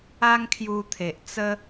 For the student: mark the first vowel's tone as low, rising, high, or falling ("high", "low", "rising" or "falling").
high